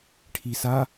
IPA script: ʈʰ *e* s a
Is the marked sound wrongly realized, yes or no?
yes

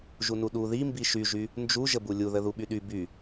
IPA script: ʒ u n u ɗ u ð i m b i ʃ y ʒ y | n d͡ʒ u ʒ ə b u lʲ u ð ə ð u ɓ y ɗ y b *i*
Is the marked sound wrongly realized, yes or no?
yes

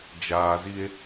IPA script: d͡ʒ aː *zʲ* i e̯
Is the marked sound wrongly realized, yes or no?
yes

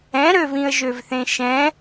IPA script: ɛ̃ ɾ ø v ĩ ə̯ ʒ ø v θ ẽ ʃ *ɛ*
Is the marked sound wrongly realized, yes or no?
yes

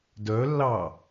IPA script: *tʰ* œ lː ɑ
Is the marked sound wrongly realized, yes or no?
yes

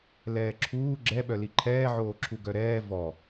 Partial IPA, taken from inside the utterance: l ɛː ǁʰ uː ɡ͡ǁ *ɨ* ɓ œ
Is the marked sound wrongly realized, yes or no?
yes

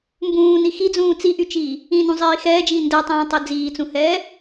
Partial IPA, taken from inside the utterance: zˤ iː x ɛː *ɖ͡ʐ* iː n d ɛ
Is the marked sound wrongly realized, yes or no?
yes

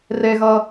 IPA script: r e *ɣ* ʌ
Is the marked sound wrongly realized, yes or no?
no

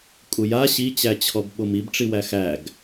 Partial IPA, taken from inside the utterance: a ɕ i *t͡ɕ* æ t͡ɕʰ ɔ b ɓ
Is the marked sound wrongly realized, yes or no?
no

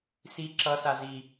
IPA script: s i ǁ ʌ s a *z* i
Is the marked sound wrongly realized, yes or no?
no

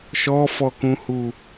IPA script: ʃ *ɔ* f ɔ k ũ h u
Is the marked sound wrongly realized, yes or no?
no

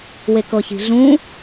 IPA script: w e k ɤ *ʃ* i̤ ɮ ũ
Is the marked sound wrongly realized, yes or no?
yes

